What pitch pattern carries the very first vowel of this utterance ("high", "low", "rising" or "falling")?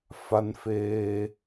high